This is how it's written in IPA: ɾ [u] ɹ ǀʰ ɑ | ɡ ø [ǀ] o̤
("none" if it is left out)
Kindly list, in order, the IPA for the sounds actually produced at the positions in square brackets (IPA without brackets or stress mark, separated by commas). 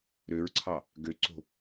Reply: ø, ǀ